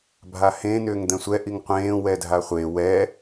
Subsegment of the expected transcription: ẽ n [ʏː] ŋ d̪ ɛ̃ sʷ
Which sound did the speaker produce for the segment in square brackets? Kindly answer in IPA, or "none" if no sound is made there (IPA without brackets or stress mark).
ʏː